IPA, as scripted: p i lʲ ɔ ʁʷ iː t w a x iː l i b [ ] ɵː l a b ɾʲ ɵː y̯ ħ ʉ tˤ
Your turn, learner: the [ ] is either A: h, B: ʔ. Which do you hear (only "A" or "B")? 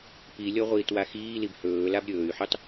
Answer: A